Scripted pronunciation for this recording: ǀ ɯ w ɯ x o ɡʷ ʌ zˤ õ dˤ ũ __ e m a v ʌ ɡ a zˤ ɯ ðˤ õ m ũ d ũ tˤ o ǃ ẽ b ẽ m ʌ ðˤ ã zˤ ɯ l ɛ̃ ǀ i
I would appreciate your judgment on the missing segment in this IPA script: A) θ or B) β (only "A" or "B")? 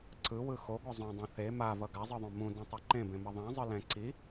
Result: A